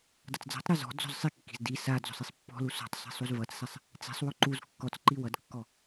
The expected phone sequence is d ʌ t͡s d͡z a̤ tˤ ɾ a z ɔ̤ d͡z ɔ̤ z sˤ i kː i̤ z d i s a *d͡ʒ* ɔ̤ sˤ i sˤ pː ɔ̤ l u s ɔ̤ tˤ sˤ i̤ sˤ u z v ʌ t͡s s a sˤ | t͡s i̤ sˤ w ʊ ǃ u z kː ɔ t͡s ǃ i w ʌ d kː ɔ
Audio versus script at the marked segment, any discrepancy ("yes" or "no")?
yes